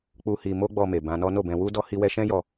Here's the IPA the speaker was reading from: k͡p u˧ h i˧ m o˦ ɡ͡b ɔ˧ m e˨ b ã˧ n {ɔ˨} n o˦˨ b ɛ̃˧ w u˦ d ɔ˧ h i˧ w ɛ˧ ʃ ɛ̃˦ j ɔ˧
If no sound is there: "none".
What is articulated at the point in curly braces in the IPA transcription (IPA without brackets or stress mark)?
ɔ˦